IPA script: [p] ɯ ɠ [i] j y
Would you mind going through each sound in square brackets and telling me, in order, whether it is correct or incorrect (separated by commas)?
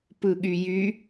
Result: correct, incorrect